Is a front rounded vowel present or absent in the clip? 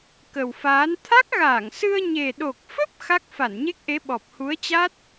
absent